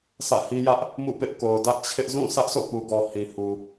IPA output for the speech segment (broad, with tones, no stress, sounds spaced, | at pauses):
sʰ ä̰˦˨ h i˦ j ä˦ ʔ | m ṵ˦˨ p ɪ˦ ʔ k o˨ ʊ̯ d ä˦ ʔ t͡ɕʰ ɪ˦ ʔ z ũ˦˨ sʰ ä˦ ʔ sʰ o̰˦˨ p u˨ ɡ ɔ˨ h ĩ˨ h u˨